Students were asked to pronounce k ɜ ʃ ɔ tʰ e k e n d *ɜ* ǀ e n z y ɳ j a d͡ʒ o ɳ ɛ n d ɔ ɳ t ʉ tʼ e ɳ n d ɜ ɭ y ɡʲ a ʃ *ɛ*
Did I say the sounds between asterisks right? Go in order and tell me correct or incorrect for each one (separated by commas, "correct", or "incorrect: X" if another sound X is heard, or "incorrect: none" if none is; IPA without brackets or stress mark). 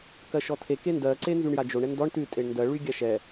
correct, correct